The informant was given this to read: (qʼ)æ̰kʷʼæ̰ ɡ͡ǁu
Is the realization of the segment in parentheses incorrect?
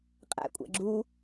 no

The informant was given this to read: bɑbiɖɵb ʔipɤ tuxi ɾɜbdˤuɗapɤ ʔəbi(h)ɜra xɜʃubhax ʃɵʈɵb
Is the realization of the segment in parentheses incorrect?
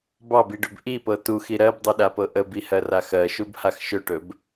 no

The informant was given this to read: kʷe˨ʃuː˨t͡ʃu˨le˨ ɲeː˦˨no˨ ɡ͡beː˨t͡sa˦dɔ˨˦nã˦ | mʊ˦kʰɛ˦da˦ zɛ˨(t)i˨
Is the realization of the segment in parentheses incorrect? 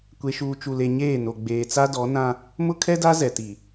no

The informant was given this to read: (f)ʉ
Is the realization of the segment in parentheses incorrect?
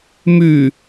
yes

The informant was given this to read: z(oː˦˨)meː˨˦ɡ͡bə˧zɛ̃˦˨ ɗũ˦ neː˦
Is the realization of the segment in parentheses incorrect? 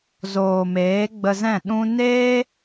yes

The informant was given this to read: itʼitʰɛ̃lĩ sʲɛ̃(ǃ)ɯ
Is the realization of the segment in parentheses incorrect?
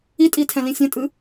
yes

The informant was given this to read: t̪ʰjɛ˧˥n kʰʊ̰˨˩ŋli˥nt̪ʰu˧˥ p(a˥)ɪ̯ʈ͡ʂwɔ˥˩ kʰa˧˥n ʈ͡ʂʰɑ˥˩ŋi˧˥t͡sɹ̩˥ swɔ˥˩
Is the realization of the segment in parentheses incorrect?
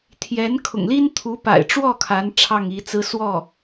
yes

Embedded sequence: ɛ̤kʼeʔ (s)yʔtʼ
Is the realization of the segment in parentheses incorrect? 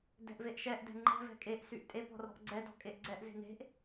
no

